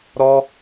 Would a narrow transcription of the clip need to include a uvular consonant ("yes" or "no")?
no